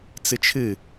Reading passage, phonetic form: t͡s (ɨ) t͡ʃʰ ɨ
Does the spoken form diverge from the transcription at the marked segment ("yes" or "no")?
no